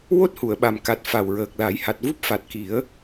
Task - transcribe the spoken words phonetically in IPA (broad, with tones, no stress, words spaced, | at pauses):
wo˦˥t̚hu˨˩˨ə̯ɓa˨˩mka˨˩t̚ fa˨˩wɹəː˨˩k̚la˨˩˦j ha˨˩t̚vu˦˥p̚fa˨˩t̚ki˨˩˦ə̯